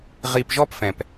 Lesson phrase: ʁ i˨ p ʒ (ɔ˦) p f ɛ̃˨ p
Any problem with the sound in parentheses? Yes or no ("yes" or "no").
no